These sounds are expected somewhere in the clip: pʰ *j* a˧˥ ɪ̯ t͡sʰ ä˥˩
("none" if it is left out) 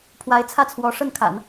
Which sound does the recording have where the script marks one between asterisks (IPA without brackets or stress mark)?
w